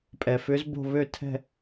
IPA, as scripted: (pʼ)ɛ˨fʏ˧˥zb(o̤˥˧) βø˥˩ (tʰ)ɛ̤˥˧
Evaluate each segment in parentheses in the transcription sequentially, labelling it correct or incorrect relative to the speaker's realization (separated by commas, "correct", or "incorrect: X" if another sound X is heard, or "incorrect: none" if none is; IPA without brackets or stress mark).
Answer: correct, correct, correct